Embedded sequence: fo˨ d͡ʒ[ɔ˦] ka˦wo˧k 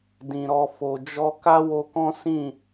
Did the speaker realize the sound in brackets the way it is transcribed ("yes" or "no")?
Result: no